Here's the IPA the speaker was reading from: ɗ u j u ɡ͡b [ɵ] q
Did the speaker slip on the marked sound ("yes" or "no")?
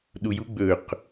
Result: no